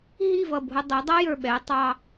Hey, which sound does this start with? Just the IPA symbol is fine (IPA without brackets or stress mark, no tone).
ɦ